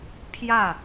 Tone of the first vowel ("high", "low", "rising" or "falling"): falling